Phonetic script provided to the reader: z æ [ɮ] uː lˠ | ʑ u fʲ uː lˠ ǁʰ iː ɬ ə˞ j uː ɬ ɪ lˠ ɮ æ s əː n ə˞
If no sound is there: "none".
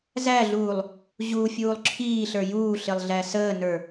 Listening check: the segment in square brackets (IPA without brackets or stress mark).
ɮ